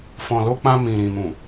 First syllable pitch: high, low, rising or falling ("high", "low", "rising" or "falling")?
low